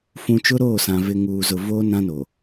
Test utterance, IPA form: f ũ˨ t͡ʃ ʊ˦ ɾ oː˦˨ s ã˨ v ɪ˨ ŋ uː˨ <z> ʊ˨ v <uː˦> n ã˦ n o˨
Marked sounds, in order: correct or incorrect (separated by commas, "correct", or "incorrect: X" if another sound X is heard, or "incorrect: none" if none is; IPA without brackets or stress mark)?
correct, incorrect: oː˦